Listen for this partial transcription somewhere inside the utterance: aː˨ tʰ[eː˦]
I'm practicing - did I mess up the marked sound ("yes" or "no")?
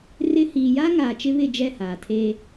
no